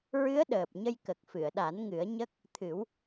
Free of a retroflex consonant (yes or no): yes